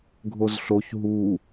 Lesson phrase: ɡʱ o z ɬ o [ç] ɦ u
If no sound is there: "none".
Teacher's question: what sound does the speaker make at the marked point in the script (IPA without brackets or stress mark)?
ç